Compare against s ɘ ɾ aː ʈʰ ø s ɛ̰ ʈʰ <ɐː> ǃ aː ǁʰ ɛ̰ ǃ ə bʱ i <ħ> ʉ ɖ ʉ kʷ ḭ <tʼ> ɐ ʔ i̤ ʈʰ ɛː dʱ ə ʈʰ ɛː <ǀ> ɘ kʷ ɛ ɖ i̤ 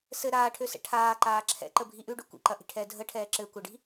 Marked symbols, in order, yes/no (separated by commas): no, no, no, no